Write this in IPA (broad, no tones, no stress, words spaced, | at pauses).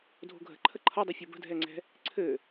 dʱo̤ɡʱə̤ ǃʰəǃʰʌdˤə fʲobə̤dʱɛŋ͡ǀɛ̤ | ǀʰɘ